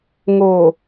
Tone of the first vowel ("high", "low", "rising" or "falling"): low